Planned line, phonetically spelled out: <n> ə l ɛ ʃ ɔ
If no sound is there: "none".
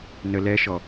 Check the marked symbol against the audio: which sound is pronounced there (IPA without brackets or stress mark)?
n